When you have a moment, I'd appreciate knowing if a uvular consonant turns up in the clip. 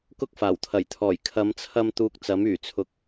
no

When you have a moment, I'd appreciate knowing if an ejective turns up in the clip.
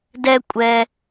yes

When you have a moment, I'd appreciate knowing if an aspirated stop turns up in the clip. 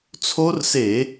yes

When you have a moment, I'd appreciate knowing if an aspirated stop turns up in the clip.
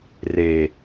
no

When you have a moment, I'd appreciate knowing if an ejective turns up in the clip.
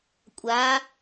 yes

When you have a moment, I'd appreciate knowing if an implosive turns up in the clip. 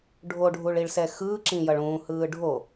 no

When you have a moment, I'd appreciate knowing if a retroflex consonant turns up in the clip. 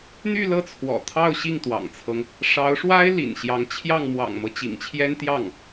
yes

